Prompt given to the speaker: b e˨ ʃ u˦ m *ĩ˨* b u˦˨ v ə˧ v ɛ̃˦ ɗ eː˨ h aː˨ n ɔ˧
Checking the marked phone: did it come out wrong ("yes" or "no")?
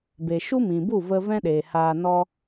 no